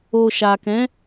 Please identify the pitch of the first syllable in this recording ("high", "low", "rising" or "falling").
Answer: low